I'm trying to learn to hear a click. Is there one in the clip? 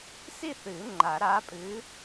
yes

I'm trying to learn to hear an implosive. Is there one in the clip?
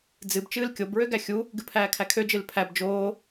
no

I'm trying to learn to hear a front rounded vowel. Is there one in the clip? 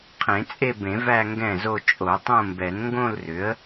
yes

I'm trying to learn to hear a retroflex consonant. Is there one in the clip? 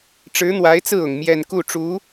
yes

